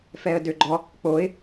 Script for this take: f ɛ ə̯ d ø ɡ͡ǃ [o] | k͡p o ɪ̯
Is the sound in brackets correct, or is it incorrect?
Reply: incorrect